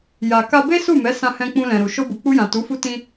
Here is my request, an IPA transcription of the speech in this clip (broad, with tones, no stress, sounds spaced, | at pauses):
j a˨ k a˧ b e˦ s u˦˨ m ɛ˨˦ s ã˧ h ɛ̃˧ k͡p ũ˧ l ɛ̃˨ ɾ u˨ ʃ o˧ b u˨ k͡p u˧ j ã˨ t u˨˦ f u˦ t ĩ˧